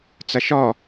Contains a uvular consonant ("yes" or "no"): no